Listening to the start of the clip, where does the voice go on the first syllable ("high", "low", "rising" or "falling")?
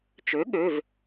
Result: rising